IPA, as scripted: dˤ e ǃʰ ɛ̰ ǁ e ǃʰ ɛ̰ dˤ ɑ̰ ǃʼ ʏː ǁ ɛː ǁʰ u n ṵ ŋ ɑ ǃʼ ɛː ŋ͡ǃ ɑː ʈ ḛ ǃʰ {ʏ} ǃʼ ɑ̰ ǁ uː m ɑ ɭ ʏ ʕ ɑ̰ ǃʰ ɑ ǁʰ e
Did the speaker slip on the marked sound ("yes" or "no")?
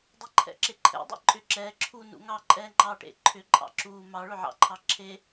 no